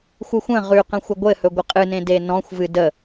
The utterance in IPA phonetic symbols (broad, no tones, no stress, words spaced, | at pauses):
xʷɨxʷə̃ ʁʉqə̃xʷə ɡʷɘhɵ ɡʷɘqʼɨnẽ denɔ̃xʷ vɨdə